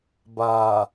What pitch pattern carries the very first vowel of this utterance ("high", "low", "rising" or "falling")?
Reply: low